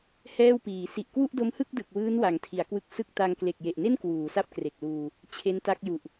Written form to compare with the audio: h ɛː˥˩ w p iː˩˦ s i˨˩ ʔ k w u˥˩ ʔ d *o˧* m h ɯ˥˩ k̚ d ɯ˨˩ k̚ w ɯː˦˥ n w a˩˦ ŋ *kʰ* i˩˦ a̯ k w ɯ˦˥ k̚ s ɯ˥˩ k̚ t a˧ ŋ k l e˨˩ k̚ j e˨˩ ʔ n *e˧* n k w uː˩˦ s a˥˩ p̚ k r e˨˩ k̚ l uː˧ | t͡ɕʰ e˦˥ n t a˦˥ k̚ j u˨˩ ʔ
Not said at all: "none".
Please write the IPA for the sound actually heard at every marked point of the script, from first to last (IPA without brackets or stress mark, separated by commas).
o˦˥, tʰ, e˥˩